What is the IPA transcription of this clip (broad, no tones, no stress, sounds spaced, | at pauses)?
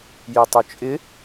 j i tˤ ʊ t͡ʃʼ ɪ